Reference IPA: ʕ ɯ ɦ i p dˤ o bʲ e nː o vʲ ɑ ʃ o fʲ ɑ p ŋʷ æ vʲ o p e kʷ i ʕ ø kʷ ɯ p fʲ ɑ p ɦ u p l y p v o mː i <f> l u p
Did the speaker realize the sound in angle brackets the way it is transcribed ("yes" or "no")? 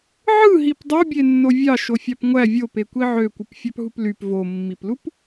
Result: no